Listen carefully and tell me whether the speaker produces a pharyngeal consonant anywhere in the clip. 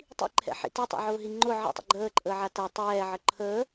yes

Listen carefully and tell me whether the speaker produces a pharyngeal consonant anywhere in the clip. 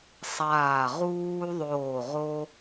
no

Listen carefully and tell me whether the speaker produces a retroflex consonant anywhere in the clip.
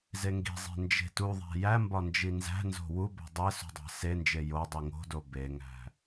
no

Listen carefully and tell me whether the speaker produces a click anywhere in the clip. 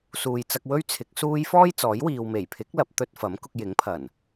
no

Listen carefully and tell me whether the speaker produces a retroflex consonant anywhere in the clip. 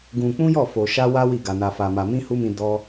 no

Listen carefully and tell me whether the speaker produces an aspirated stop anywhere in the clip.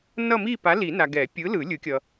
no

